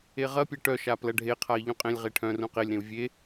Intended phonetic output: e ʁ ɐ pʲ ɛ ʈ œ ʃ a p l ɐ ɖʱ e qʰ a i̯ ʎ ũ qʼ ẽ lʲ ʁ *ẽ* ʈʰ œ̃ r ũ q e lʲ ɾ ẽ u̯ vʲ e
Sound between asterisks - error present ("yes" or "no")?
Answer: yes